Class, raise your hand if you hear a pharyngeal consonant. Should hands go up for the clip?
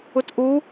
no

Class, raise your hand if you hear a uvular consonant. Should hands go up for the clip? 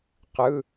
yes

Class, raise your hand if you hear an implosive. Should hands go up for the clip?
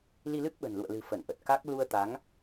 yes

